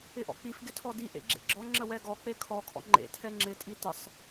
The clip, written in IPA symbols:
ɪʔɔ̰k͡pif ɡɪtʰɔdi ʔḛɡ͡ǁḛɡ͡ǁɔ ŋ͡ǁəwɛɡɔ k͡pekʰɔ kʰɔ̰ŋ͡ǃḛ tʰɛŋ͡ǁɪ tʼitɪsˤ

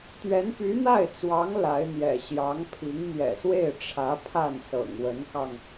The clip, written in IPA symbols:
t̪ɥɛ˧˥npy˧˥n̪a˥˩ɪ̯t͡swɑ˧˥ŋ la˧˥ɪ̯n̪jɛ̰˨˩ ɕjɑ˧˥ŋpʰi˧˥ŋ n̪jɛ̰˨˩swe˥˩ɪ̯ʈ͡ʂʰä˧˥ pʰa˥˩nsɤ̰˨˩ŋwə˧˥nkɑ˧ŋ

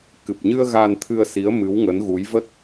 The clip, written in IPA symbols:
kɨ˨˩p̚ɲɨ˧ə̯ ɣa˧nt̪ʰɨ˧ə̯si˨˦ə̯ mɨ˨˦wŋə˨˦nɣu˨˦j və˦˥t̚

